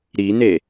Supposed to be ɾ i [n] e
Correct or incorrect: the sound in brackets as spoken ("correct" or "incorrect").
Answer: correct